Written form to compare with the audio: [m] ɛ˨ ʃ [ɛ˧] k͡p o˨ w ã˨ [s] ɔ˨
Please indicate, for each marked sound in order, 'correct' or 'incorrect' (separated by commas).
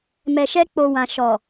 correct, correct, incorrect